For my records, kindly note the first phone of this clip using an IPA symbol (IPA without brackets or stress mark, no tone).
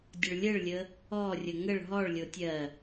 dʲ